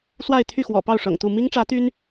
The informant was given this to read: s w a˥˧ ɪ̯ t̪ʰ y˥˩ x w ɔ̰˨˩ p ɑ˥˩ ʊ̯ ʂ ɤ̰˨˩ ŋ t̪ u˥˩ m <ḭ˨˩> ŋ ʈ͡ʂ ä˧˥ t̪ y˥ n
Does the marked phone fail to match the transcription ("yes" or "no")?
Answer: yes